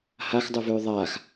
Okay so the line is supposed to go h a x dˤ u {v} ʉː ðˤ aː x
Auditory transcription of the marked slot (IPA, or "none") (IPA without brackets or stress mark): v